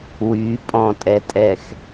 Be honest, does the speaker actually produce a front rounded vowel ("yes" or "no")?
yes